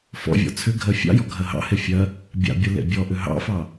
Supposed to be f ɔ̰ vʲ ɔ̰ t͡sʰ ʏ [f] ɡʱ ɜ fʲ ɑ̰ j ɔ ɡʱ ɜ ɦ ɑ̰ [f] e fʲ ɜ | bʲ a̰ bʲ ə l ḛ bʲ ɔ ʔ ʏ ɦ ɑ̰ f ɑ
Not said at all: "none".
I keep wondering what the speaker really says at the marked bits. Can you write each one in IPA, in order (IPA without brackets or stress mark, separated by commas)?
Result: none, h